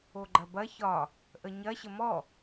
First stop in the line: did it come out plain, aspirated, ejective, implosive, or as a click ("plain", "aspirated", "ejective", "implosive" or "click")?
click